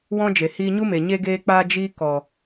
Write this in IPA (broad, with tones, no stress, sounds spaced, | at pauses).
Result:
w ɔ̃˦ d͡ʒ e˨ h iː˧ ɲ u˦ m e˨ ɲ e˧ ɡ eː˧ k͡p aː˧ d͡ʒ iː˦ k ɔ˨